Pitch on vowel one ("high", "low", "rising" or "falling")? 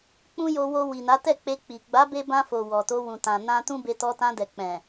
high